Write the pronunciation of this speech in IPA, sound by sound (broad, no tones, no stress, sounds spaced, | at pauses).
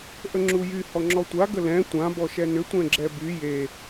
ʔ ə ŋ͡ǁ u j y h ɔ ŋ͡ǁ ɔ tʷ a ɡ ə l ɛ̃ tʷ ã b ɔ ʃ ɛ n ʏ tʷ ɛ̃ ɡ͡ǁ ɛ b y j e